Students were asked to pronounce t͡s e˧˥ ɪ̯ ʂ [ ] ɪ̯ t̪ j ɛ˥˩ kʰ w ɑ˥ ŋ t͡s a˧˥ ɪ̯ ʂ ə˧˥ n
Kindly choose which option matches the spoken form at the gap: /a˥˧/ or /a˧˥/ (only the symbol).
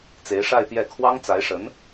a˥˧